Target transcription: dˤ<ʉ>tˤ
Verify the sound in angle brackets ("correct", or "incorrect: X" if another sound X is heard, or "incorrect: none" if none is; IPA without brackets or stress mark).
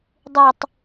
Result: correct